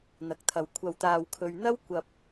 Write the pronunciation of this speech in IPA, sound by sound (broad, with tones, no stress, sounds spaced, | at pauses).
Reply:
n̪ ɐ˨ k̚ t̪ʰ ɐ˨˧ w kʷʰ ɐ˧ w t̪ aː˧ w kʰ ɵ˧ ɥ n̪ ɐ˥ w kʷ ɐ˧ p̚